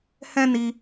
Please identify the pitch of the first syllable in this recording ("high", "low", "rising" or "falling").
high